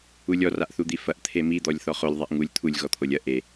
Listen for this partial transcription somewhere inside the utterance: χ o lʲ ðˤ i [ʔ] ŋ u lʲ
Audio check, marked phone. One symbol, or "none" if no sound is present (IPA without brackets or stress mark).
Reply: ʔ